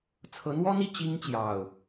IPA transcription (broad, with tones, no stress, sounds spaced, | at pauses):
t͡sʰ ɤ˨˦ n̪ w ɔ˦ n̪ i˥˨ t͡ɕ i˦ ŋ t͡ɕ j ɑ˨˩ ʊ̯